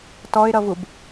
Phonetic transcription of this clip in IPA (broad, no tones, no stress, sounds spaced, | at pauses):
t ɔ ɪ̯ ɾ ʌ v u b